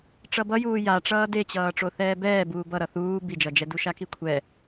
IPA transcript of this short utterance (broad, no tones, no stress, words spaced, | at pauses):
ʈ͡ʂʌbʌjuː ja ʈ͡ʂʌːdet͡ɕʌː ʈ͡ʂoθɛːbɛː buːbʌɾʌ θuː bid͡ʒʌd͡ʒɛdu ʃakikʷʰɛ